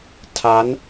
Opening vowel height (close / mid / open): open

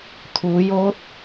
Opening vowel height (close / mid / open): close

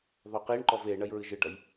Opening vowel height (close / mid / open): mid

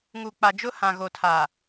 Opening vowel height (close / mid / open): close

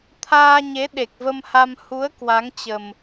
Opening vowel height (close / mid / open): open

